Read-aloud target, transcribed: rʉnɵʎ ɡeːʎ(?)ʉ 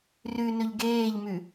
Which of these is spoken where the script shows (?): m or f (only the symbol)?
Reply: m